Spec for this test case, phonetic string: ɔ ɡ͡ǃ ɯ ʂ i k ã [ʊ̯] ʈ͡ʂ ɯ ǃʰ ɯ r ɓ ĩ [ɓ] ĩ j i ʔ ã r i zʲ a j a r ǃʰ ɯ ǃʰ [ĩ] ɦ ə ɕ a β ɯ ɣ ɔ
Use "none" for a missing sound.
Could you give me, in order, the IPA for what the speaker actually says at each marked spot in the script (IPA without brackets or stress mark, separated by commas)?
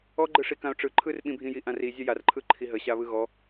ʊ̯, bʱ, i